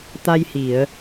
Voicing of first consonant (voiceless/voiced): voiceless